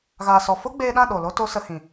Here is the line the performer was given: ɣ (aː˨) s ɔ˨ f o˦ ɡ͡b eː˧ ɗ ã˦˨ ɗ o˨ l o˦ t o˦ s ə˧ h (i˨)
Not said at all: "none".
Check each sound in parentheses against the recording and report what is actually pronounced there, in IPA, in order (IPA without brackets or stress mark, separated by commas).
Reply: aː˨, ĩ˨